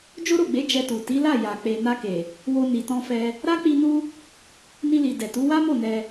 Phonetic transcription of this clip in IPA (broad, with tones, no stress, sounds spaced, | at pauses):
d͡ʒ o˦ ɾ o˦˨ ɡ͡b e˨˦ d͡ʒ ɛ˧ t u˨ t i˨˦ l a˦˨ j a˨ k͡p e˨ n a˧ k e˨ | w o˧ n i˨ t ɔ̃˧ f ɛ˧ | ɾ a˦ k͡p i˧ n u˦ | n i˧ l i˨ d ɛ˨ t u˨˦ w a˦ m o˦˨ n ɛ˧